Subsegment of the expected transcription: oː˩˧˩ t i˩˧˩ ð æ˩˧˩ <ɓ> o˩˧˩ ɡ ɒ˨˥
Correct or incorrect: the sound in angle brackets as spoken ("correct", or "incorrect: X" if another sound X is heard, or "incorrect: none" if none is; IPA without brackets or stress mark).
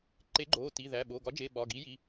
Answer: correct